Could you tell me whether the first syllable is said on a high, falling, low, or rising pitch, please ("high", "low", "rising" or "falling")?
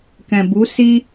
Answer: low